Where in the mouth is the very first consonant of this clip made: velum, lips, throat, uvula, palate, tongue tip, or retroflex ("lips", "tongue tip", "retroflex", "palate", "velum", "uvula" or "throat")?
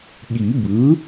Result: velum